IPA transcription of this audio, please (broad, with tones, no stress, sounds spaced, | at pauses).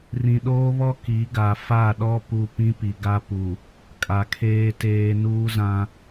r ĩ˨ ɗ oː˦ β ɔ˦ k i˨˦ ɡ a˨ f a˦˨ ɗ ɔ˦ p u˦ p ĩ˦ p i˨ ɡ a˦ p u˨ | kʼ a˨ kʰ eː˦ t eː˦ n uː˦ z ã˦